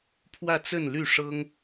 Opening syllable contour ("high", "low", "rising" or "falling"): falling